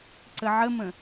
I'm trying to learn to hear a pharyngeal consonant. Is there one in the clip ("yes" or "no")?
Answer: yes